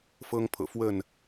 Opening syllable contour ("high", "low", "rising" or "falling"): high